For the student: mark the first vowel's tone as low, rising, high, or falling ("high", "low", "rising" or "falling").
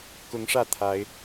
rising